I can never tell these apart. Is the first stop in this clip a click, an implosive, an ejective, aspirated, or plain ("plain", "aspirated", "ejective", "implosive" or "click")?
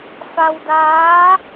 plain